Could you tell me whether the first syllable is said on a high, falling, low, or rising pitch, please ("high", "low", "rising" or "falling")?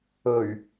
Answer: low